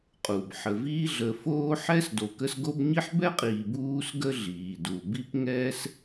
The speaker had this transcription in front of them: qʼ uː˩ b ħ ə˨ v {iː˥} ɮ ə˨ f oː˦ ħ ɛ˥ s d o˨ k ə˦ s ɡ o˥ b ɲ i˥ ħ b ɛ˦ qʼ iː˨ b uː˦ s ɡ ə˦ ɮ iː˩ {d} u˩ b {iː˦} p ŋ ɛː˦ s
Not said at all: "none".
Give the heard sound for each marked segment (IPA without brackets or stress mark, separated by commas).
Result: iː˦, d, i˦